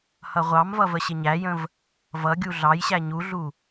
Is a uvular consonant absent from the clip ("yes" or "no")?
no